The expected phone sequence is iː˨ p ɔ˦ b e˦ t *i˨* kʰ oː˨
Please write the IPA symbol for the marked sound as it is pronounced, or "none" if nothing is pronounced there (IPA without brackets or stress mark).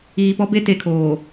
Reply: e˨